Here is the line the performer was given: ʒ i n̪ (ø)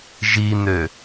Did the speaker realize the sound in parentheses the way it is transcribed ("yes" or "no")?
yes